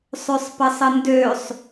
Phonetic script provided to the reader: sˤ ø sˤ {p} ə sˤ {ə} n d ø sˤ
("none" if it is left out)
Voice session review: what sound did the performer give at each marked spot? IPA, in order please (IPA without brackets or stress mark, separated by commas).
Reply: p, ə